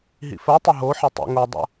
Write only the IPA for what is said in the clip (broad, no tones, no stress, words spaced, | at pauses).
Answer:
ɦḭfɜtˤɵ ɦo ħɪtˤṵŋodˤa̰